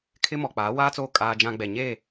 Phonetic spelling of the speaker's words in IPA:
kʰɪ˦mɔ˨ k͡paː˨˦waː˦t͡soː˦ kʼaː˦d͡ʒã˦ ɡ͡bɛ˨ɲeː˦˨

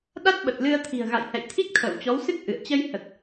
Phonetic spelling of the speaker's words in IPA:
ɗa˦˥t̚ɓə˨˩t̚lɨ˧ə̯t̪ʰi̤˨˩ə̯ ɣa̰˧˨jhɛ̰˧˨jt̪ʰi˦˥k̚ t̪ʰə̰ː˧˨wt͡ɕɔ˨˦wsɨ˦˥k̚ ʔɨ̰˧˨ə̯ t͡ɕə˧jhə˨˩t̚

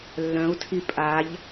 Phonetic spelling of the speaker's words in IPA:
lːœ̃u̯tʰi pʼaʎ

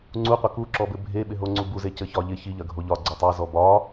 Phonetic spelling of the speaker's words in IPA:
ŋ͡ǀuqʷɐ kuǁɔbɘ bʱeɓɪɦoŋ͡ǀu buzecɘçɒ ʎɪ çiʎɐɡʱo ʎɒɡ͡ǀo tˤɐzɔ bɒ

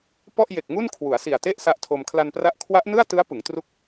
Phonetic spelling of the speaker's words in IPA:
pɔ˥˩ʔje˨˩k̚ŋu˥˩n kʰwu˩˦a̯si˨˩a̯te˥˩ʔ sa˦˥ʔtʰo˧m kʰla˧npra˦˥ʔ kʰwa˦˥ʔnɯ˥˩a̯tɯ˦˥a̯ pɯ˩˦ŋtru˦˥k̚

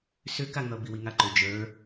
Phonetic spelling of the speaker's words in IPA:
sʏkaŋʌ biwiŋaǃʏ d͡ʒə˞

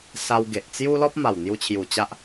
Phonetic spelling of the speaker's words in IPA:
sa˧w ɡe˨ʔt͡sju˦ lɔ˦p̚ma˨˩w n̪ju˧t͡ɕʰju˨˩ t͡ɕa˦ʔ

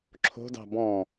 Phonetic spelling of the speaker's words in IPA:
ǁʰo̤dɑ̤ bɔ̃

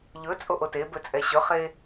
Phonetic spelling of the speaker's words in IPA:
ʎɵ t͡sʼoʔotebɵ t͡sʼɛɕɵχe

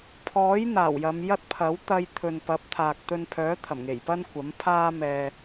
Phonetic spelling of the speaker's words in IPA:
pʰɔː˨˥j n̪aː˨˩wjɐ˨˧mjɐ˥t̚pʰɐ˨˥w t̪ɐ˧j t̪ʰɵ˨npɐ˨˥p̚t̪ʰaː˨k̚ t̪ɵ˧npʰœː˨˥ t̪ʰɐ˨˩mŋe˨˩j pɐ˥nkʷɐ˨˥m pʰaː˥ mɛː˧

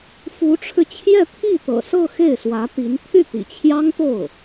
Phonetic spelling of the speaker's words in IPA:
fu˧˥ʈ͡ʂʰɻ̩˧t͡ɕʰjɛ˥˧ t̪ʰi˥˩t̪ɤ̰˨˩sɤ˥˧ xe˥˩ɪ̯swä˧˥t̪i˧˥n t̪ʰy˥˩t̪ḭ˨˩t͡ɕʰjɑ˥ŋt̪o˥˩ʊ̯

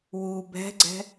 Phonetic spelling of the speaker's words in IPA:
wu bɛ̤ɡ͡ǀɛ̤

